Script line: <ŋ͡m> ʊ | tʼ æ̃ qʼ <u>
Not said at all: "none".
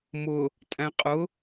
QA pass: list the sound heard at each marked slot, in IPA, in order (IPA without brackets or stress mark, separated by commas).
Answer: m, ʊ